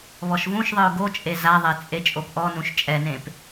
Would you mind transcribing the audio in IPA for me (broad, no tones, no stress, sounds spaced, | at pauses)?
β ɔ ʃ v ũ ʃ ðˤ ɯ ʊ̯ ɡ o t͡ʃʼ e z a ðˤ e t͡sʼ e t͡ʃʼ o p ʔ ɔ n ũ ʃ t͡ʃʼ ɛ n ẽ p